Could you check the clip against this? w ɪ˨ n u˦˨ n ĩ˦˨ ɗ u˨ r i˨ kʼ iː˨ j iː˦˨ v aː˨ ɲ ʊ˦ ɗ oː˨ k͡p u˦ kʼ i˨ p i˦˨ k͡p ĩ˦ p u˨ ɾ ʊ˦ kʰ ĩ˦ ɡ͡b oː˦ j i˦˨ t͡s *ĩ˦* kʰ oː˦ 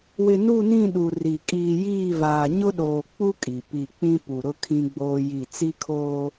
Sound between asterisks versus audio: incorrect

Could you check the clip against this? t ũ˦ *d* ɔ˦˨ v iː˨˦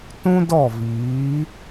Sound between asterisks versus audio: correct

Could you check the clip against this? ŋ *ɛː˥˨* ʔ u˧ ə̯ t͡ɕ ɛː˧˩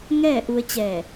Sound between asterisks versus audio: correct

